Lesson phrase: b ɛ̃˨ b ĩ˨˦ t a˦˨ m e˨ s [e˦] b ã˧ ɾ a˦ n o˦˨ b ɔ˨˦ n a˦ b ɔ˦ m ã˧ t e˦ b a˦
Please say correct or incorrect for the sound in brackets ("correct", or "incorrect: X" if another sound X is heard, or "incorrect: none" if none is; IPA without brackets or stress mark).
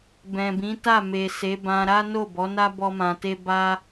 incorrect: e˨˦